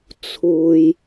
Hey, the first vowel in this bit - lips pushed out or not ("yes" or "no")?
yes